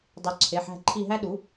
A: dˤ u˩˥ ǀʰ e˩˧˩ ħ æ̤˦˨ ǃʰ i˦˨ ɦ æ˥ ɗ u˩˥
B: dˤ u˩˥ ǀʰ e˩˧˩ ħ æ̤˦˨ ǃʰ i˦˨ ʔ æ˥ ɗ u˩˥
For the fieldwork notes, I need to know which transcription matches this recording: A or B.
A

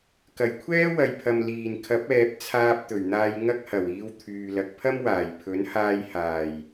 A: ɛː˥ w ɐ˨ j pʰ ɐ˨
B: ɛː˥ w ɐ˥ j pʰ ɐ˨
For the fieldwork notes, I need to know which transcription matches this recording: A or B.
A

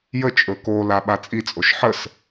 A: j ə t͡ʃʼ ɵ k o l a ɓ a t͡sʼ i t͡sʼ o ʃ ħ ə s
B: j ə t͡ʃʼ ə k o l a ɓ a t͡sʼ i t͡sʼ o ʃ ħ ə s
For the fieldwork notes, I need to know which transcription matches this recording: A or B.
A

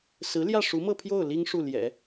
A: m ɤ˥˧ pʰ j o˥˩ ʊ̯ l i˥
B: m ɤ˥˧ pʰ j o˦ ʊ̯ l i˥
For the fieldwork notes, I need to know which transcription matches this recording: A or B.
A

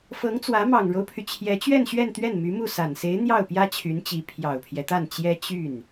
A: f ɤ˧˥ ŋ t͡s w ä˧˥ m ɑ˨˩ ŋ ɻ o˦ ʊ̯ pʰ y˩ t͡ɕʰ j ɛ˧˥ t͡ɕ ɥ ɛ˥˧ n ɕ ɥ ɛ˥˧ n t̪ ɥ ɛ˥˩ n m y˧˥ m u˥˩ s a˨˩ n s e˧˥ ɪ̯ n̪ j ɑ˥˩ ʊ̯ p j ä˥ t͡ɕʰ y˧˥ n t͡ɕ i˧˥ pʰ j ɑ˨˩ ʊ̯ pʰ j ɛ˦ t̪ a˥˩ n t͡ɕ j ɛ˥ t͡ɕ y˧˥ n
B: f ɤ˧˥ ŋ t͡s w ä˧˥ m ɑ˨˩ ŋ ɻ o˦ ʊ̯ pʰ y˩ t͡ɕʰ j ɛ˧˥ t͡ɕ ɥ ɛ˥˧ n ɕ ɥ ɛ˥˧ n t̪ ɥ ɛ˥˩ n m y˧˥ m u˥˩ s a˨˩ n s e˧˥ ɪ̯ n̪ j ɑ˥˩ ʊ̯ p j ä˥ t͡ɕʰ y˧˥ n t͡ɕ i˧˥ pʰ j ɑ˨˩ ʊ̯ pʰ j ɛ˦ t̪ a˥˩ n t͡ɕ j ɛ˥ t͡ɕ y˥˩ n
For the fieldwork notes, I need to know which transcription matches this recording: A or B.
B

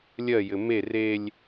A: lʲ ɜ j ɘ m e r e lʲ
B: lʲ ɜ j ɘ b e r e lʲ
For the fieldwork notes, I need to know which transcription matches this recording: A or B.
A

